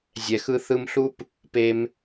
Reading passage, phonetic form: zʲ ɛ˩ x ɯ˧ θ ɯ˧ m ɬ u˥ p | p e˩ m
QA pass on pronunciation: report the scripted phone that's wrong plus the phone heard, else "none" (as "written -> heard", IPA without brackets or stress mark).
none